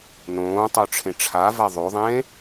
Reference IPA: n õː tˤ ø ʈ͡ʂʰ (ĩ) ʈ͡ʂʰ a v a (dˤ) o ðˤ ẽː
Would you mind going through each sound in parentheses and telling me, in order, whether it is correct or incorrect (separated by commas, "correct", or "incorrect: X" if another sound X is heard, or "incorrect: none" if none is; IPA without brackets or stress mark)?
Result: incorrect: ẽ, incorrect: ðˤ